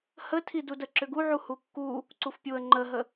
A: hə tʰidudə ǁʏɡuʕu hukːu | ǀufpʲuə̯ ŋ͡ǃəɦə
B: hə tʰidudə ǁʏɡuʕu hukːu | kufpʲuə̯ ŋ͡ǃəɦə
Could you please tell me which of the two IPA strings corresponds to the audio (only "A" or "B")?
A